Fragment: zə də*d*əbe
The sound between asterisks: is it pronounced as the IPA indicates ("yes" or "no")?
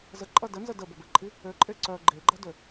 no